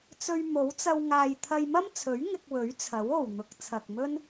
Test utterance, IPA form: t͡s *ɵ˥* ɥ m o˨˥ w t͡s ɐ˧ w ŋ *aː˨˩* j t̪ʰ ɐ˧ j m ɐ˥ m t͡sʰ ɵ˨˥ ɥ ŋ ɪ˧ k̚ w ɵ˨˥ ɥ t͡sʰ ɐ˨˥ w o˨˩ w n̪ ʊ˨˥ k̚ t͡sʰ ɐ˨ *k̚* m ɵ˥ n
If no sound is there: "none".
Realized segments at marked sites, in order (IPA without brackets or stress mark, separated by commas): ɵ˧, aː˨, k̚